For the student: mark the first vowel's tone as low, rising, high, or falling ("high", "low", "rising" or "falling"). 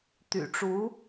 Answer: low